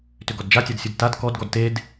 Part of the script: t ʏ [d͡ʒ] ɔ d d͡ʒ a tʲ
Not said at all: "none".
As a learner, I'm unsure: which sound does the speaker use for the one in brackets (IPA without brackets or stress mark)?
ɡ